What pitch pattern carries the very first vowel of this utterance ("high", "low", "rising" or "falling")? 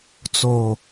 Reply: low